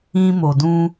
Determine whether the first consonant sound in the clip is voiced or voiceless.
voiced